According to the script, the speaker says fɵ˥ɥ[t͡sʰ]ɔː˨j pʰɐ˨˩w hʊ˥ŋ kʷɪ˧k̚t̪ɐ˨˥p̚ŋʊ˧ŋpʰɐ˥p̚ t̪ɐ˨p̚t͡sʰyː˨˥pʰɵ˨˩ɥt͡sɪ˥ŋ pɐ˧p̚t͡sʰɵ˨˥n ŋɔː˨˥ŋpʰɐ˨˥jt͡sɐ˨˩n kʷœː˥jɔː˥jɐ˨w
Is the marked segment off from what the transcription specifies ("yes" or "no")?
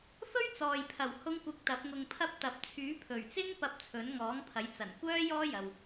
yes